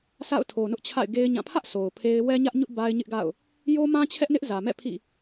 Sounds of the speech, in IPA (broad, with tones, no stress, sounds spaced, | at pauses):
sʰ a̰˦˨ ʊ̯ tʰ o˨ n ʊ˦ ʔ t͡ɕʰ a̰˦˨ ɪ̯ ɡ e˦ ɪ̯ ɲ ã˦˨ pʰ ä˦ ʔ sʰ o˨ ʊ̯ pʰ e˦ ɪ̯ w ɛ˦ ɲ ä˦ ʔ ɲ ʊ˦ ʔ b a˦ ɪ̯ ɲ ɪ˦ ʔ ɡ a̰˦˨ ʊ̯ | j o˦ m ã˦ t͡ɕʰ ɛ˦ ʔ n ɪ˦ ʔ z ä˨ m ɛ̰˦˨ pʰ ḭ˦˨